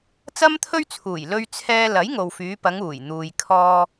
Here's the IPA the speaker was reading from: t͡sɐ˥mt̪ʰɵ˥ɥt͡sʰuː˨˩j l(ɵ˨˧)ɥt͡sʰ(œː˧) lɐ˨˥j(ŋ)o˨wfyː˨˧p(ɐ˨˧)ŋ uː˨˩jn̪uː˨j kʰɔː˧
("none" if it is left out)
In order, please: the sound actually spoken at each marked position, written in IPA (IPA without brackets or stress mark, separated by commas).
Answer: ɵ˧, ɛː˧, ŋ, ɐ˨˧